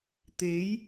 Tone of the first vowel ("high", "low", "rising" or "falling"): rising